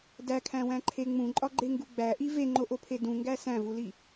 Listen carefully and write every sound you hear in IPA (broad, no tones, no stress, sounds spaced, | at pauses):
d æ kʰ æ̃ w æ̃ ǃʰ e ŋ͡m ũ ǃʼ ɒ ɡ͡ǃ e ŋ ɡ u ɡ͡b æ ʔ i v e ŋ͡ǃ o ʔ o pʰ e d ũ ŋ ɡ æ s æ̃ v u l i